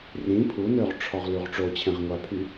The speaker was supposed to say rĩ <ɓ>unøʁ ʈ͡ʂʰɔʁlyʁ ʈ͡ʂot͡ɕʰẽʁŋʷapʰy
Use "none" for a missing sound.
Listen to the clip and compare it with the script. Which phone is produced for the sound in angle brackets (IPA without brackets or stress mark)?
pʰ